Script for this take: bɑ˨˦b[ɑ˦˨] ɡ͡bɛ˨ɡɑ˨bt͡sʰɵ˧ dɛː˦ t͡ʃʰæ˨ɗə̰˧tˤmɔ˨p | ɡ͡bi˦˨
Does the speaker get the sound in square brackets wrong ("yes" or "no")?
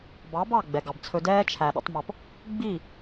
no